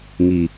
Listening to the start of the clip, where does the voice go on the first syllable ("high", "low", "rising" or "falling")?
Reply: low